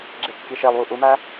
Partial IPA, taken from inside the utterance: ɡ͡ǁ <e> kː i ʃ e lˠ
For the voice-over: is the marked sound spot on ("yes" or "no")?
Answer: yes